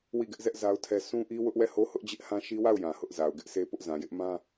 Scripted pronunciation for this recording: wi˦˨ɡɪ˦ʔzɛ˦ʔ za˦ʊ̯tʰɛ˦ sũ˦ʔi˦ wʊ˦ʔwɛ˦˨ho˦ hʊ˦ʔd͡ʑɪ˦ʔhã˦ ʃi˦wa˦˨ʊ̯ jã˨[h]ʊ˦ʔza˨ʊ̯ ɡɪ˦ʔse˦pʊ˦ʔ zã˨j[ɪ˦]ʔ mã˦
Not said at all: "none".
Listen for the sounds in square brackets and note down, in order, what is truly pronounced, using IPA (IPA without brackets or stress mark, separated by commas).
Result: h, ɪ˦